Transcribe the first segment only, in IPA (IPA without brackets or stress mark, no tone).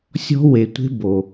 sʲ